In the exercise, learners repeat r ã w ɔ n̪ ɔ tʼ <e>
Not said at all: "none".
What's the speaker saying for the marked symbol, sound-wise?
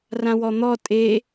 e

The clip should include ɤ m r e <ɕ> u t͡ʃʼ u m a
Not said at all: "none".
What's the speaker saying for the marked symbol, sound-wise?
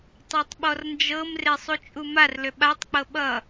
sˤ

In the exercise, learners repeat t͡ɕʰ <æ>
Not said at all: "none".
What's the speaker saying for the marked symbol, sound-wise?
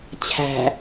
æ̤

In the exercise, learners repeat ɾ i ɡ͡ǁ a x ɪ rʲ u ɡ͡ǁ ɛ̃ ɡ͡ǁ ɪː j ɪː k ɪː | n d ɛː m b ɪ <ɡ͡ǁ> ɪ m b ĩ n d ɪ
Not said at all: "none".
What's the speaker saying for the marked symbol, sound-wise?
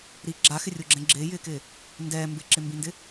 ǁ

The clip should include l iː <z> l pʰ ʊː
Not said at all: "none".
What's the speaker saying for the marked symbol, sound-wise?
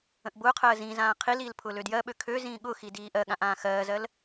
none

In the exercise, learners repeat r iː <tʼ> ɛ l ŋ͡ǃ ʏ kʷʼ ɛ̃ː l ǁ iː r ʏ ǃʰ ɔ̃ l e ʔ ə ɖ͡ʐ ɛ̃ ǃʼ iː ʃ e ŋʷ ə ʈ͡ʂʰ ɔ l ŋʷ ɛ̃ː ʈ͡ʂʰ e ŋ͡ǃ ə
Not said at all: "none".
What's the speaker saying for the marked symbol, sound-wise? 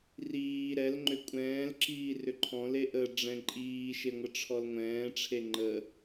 ɾ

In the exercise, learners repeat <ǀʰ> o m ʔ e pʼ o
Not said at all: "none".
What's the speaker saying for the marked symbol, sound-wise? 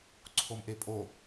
ǀʰ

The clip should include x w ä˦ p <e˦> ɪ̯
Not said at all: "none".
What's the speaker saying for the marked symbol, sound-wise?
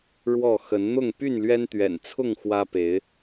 e˨˦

